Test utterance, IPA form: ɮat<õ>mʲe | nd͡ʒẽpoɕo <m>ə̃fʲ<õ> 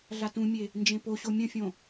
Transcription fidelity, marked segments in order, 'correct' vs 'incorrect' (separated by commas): incorrect, incorrect, correct